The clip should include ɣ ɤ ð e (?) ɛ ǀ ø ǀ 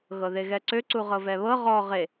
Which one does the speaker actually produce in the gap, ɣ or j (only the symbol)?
ɣ